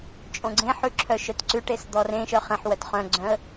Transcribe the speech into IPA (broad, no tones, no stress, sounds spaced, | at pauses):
t͡ʃʼ õ ɡ͡ǀ ẽ ħ ʉ ǁʰ œ ʃ œ t ǀ ʉ ʈ e s d̪ ɔ r ẽ ʃ œ χ ẽ ħ w œ t χ œ̃ ɡ͡ǀ œ̃ ə̯